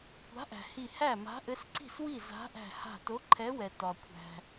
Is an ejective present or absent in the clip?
absent